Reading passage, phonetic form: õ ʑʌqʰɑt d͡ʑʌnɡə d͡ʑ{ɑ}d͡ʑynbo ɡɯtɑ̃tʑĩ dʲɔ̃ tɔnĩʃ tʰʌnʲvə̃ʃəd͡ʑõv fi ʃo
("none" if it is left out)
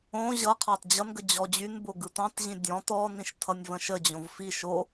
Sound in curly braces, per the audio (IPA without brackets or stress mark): ɔ